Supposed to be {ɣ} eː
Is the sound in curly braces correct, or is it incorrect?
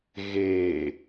correct